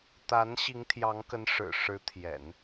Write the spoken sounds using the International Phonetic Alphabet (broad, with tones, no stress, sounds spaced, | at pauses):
t̪ a˧˥ n ɕ i˧˥ ŋ t̪ʰ j ɑ˧˥ ŋ k ə˧˥ n ʂ ɻ̩˨˩ ʂ ɻ̩˧˥ t̪ʰ j ɛ̰˨˩˦ n